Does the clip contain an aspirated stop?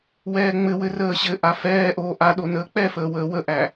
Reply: no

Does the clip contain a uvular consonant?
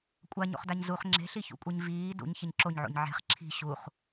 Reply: yes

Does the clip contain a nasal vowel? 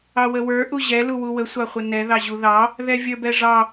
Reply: no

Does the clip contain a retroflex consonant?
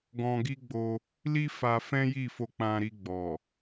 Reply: no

